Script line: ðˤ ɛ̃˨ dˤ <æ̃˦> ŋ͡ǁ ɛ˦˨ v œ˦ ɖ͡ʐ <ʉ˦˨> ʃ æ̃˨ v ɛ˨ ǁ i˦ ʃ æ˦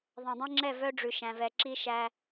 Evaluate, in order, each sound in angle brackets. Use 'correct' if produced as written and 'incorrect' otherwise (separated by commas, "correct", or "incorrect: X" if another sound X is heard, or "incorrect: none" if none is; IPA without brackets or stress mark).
incorrect: ɛ̃˦, incorrect: ʉ˨